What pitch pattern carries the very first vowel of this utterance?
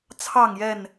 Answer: falling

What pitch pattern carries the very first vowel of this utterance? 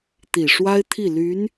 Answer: low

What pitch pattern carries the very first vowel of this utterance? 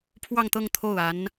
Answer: falling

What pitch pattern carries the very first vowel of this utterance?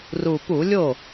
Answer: low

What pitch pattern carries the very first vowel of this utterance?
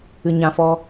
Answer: low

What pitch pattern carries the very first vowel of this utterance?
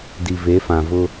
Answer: low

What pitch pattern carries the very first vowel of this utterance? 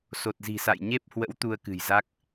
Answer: low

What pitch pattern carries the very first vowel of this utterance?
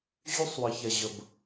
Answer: high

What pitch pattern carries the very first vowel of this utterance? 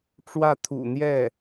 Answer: falling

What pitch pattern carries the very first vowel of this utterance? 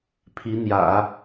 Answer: rising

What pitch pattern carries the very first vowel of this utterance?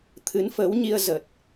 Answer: rising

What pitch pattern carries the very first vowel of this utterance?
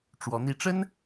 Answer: rising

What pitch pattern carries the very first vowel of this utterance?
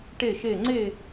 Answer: falling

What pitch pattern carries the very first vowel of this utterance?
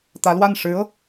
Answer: rising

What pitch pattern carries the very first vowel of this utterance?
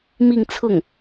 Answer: falling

